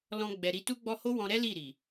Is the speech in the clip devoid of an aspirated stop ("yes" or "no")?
yes